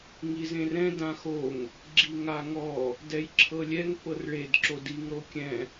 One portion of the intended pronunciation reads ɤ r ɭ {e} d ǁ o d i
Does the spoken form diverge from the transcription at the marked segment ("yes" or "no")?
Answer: no